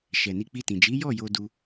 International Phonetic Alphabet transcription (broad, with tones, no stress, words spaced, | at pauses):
ʃɛ˨ni˧k͡pi˧tĩ˨ d͡ʒi˨˦jɔ˦˨jo˧ du˧